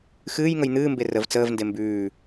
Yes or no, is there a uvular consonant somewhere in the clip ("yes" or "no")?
no